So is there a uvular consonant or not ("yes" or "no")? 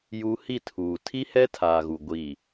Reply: no